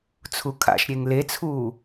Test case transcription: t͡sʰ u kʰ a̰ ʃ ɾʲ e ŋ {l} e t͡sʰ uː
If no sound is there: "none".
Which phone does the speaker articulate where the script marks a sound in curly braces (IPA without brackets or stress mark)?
l